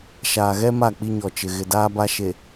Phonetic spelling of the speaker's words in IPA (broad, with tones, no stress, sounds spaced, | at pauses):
ʃ aː˨ ɣ ɛ˦ m a˦˨ k͡p i˦ ɲ ɔ˨ t͡ʃ ɪ˨ ɣ ɪ˨ d aː˦ b a˦ ʃ e˨